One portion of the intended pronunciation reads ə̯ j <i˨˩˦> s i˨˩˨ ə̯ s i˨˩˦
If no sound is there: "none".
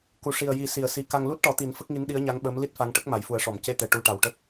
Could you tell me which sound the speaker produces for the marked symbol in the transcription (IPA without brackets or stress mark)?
i˨˩˦